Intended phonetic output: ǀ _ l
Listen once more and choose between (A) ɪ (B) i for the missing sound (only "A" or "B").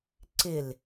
A